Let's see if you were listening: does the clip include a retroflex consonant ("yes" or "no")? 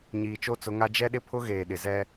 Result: no